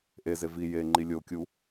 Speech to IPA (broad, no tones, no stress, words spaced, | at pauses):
ʔeze vi jeŋ͡ǃi lʲokʲu